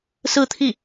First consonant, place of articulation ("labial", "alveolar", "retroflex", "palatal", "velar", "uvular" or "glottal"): alveolar